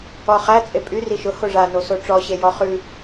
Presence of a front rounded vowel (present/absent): present